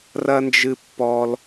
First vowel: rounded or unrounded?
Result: unrounded